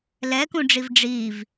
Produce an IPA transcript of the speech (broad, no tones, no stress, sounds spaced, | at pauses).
l ɛ k ũ ɖ͡ʐ i v ɖ͡ʐ i v